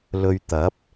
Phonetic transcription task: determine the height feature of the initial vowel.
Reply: mid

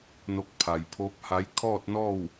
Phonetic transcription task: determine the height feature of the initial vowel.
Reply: mid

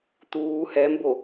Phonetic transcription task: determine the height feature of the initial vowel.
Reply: high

